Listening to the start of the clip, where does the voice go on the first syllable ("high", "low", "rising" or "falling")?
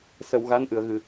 low